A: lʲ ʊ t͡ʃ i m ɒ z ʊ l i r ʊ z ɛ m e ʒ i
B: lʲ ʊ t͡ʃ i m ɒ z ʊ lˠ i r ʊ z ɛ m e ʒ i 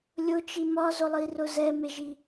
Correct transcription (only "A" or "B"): B